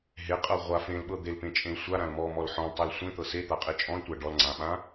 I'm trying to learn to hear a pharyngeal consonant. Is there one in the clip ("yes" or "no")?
yes